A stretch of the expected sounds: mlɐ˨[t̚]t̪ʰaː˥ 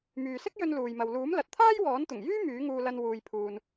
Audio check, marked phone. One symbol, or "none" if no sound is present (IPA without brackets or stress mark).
t̚